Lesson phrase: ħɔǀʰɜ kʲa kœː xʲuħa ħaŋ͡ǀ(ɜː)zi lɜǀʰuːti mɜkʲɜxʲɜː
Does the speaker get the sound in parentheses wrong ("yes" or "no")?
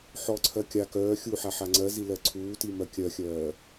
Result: yes